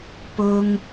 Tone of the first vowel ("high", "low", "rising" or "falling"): high